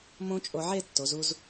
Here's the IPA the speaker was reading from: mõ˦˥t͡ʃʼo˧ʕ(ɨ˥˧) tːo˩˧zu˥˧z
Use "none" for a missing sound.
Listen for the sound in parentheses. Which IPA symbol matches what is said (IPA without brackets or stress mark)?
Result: e˥˧